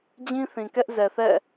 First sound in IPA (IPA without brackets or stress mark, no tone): d͡ʑ